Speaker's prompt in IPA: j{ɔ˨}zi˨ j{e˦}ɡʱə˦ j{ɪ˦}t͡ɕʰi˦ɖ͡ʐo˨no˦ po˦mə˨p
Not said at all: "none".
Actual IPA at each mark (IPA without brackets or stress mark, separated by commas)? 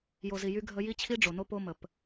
o˨, y˦, i˦